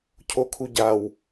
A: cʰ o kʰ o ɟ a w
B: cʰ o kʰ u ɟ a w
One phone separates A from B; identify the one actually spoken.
B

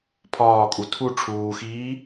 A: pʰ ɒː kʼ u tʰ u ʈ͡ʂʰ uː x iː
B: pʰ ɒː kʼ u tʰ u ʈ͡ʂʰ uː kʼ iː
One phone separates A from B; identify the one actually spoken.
A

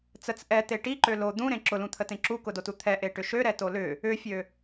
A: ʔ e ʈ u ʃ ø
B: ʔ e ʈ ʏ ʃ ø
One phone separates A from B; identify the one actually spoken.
B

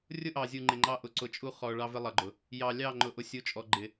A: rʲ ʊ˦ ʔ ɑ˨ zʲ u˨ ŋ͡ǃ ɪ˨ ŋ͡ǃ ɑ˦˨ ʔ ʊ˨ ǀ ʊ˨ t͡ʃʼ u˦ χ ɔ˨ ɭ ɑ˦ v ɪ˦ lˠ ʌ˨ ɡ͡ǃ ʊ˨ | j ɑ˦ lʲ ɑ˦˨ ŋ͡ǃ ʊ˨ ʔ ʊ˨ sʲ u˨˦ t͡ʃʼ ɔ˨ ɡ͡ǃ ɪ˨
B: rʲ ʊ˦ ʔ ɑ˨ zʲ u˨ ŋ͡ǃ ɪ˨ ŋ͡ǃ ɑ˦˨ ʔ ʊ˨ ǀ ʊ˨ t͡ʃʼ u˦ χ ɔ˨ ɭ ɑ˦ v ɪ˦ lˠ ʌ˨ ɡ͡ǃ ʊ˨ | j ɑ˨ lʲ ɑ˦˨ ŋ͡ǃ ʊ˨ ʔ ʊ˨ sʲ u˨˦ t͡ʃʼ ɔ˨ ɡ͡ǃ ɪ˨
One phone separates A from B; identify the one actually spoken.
B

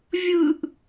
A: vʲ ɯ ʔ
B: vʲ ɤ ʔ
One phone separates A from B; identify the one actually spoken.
A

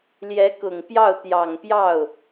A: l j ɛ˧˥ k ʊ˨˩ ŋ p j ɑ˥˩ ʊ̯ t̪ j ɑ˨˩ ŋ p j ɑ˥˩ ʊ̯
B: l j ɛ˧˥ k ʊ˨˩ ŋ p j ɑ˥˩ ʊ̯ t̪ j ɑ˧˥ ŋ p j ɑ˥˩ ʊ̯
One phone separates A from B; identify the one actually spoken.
A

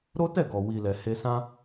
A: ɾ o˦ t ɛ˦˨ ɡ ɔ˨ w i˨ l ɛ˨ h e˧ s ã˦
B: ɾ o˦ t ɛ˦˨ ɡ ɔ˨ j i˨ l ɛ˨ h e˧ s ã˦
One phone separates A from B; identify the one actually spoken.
A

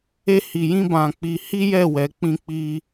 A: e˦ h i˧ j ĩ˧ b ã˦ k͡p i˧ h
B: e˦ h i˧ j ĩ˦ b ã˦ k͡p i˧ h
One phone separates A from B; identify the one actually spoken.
B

